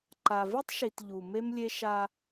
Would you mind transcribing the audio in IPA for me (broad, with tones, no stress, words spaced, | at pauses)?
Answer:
ǃa˨vi˦tˤʃi˨t ʎu˨me˦mlʲe˦ ʃa˦